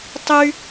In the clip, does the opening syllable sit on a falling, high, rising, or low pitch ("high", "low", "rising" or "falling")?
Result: high